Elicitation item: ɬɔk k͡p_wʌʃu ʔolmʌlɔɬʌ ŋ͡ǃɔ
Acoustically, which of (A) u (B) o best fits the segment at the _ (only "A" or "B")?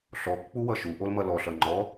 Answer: A